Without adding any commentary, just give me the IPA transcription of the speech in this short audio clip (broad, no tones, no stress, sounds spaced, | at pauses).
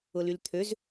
ʊ l y l t̪ʰ ø z